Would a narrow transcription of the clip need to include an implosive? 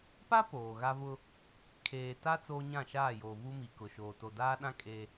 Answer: yes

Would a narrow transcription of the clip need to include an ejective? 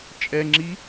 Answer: yes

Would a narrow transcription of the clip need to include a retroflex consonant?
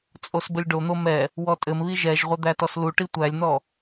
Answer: yes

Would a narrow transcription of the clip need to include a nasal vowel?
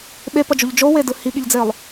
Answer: no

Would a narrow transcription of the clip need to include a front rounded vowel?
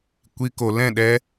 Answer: no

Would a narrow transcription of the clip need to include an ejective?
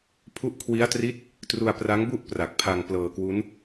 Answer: no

